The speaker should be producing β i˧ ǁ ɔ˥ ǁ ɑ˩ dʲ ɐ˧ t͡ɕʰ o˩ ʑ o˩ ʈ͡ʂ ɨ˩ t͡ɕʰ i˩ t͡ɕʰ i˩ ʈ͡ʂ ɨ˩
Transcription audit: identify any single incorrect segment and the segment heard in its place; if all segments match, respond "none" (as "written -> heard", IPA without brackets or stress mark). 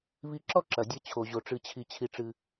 ɑ˩ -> ɐ˩